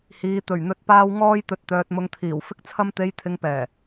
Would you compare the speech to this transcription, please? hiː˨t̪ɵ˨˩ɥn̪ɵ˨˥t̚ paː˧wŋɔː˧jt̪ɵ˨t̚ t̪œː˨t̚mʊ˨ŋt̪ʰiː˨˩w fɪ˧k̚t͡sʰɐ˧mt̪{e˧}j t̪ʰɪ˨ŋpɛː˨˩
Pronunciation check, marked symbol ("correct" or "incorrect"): incorrect